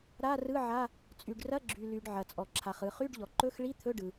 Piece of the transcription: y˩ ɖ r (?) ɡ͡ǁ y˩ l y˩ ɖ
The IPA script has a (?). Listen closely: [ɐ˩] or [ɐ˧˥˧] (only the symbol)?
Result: ɐ˧˥˧